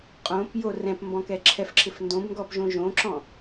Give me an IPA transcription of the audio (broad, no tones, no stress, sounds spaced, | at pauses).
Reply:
qʼ õ p j o r ɛ̃ p m b ɔ̃ k ɛ ǁʰ ɛ f ǁʰ ɪ f n d õ b ŋ ɡ ɔ p ʒ õ ʒ õ ǁ ɔ̃